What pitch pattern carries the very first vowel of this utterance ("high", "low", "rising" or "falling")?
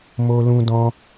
high